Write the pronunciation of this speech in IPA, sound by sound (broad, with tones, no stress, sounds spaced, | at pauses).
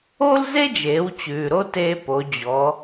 o˥ l z e˥ d͡ʒ eː˩˧ w t͡ɕ ʉː˩ ɾ o˧ t eː˧ p o˩˧ d͡ʑ ɔ˩˧